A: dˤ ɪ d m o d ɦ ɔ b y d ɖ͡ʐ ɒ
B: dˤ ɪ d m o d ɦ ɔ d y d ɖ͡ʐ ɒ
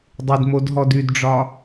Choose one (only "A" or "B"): B